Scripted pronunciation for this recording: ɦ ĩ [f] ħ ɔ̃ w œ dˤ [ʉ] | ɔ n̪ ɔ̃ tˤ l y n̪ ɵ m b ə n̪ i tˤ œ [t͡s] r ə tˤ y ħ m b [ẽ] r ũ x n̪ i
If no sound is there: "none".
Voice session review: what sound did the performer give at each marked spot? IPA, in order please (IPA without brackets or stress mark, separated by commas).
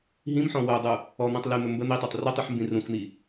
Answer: m, u, tˤ, ĩ